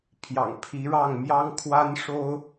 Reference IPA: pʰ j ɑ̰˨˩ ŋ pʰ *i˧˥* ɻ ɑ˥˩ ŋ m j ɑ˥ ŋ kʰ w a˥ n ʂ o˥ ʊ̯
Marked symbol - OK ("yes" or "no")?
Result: yes